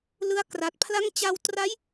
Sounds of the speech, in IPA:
lɯ˦˥a̯kra˨˩t̚pʰla˥˩ŋ t͡ɕa˧wtra˦˥j

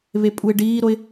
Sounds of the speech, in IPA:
βepʼuɪ̯ɖiːɾoɪ̯

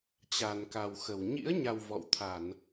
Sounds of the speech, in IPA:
t͡ɕa˨˩nka˨˩wxə˧˩w ɲḭ˧˥ə̯ɲa˨˩w vɔ̰˧˨wt̪ʰa˧˩˨n

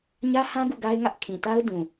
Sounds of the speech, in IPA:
ɲä˦hã˦ ɡṵ˦˨ɡa˦ɪ̯ŋä˦ʔ kʰĩ˨ta˦ʊ̯ dũ˨

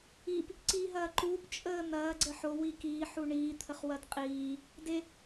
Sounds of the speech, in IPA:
ip | ǀiːɦɐːǃuːp t͡ʃʼəːn̪ɐː ɡ͡ǀəħo wikiː ħuɳiː t̪ʰəχwɐdqʼiː | de

